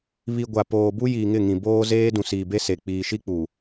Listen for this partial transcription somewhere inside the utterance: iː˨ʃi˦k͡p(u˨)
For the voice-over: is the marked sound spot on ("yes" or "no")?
no